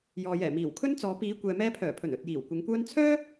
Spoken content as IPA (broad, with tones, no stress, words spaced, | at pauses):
jɔː˨jɛː˨˩ miː˨˩wkʰɵ˥nt͡sɔː˨˧ piː˨˧ kʷɛː˨mɛː˧pʰœː˨˩pʰɵ˨˩n ɵ˨t̚jiː˨˩w kʷɪ˨˧ŋkʷœː˥n t͡sʰœː˥